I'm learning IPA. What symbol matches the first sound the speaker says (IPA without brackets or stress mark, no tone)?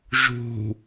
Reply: ʒ